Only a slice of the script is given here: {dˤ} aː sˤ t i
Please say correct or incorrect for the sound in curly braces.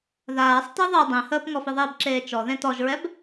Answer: incorrect